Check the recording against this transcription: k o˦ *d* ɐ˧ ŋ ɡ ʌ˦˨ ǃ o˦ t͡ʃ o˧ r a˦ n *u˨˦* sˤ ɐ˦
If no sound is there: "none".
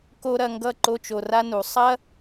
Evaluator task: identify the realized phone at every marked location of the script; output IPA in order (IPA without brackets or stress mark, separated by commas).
ɾ, u˨˦